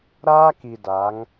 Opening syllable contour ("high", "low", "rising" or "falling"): high